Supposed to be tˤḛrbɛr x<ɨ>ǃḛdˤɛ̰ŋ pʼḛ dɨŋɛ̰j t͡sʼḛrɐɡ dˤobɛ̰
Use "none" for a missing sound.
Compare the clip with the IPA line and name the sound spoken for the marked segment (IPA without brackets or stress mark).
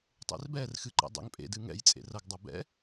ɨ